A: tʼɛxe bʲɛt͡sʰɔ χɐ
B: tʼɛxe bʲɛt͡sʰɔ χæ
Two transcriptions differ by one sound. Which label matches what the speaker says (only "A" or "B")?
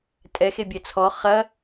A